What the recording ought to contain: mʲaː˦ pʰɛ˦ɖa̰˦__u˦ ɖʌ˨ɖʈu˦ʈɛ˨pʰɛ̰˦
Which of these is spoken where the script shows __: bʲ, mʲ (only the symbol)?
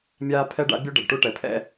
bʲ